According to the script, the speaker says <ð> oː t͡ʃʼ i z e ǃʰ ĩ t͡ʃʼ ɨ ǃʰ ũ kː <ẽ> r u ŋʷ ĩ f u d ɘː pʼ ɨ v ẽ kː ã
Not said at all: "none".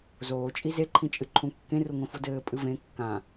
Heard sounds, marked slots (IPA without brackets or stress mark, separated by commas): z, ẽ